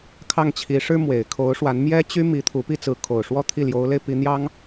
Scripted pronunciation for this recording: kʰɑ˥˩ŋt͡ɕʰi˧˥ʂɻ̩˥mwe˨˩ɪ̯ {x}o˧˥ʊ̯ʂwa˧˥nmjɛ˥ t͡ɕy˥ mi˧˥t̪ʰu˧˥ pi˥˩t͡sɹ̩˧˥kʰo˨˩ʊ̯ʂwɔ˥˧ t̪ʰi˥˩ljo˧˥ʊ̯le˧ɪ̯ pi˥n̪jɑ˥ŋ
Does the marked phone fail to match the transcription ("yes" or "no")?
yes